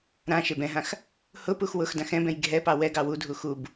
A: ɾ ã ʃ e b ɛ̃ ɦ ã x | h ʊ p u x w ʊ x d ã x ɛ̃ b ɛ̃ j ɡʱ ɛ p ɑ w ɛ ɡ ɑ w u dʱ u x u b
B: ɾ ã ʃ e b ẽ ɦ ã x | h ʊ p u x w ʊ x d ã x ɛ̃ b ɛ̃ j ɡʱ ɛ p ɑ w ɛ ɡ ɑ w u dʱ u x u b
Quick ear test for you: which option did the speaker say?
A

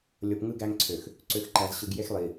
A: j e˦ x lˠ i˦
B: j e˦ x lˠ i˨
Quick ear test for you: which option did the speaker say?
B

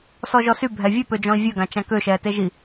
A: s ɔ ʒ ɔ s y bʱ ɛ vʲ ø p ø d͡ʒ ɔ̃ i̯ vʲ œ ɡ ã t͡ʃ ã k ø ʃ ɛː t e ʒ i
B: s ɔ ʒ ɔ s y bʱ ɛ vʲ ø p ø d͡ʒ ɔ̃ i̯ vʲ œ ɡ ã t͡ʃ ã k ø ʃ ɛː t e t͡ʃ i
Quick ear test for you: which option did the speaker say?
A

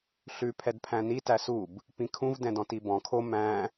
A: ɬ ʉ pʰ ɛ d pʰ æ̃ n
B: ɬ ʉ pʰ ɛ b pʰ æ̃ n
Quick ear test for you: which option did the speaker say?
A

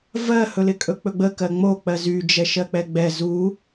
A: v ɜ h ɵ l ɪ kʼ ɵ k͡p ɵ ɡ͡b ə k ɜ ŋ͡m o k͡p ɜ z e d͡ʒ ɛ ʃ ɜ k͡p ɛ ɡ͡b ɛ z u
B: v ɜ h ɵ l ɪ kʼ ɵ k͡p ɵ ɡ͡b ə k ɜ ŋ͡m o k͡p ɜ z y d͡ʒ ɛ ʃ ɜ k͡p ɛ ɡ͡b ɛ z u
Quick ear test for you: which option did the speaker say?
B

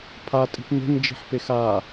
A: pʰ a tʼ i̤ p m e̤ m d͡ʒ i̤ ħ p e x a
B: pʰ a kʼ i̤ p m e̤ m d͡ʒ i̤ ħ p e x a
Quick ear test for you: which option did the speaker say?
A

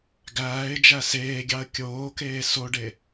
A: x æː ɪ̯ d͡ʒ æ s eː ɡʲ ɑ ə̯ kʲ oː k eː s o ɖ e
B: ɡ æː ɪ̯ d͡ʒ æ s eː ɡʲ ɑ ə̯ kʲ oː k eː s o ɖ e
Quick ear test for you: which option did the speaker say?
B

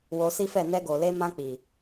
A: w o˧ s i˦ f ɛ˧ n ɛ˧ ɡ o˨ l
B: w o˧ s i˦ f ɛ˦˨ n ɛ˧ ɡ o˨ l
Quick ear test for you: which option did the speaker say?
B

